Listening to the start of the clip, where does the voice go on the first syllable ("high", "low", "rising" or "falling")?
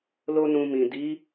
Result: high